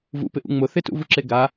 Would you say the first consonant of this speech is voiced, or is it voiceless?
voiced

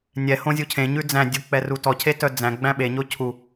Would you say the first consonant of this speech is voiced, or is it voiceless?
voiced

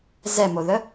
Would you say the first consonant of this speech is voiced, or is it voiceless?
voiced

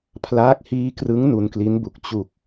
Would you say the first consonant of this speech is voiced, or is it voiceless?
voiceless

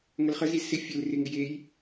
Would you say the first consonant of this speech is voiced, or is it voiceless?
voiced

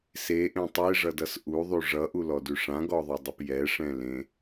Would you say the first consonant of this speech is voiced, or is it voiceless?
voiceless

